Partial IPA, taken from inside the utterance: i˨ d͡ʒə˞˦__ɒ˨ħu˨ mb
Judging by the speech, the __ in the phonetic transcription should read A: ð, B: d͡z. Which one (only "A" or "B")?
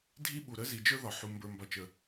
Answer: A